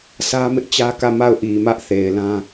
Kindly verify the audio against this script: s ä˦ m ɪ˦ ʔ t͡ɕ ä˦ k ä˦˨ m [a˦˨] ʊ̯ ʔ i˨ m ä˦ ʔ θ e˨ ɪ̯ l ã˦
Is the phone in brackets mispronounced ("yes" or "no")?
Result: no